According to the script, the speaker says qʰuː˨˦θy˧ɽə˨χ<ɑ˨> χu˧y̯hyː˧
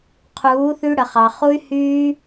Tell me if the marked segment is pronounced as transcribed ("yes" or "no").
yes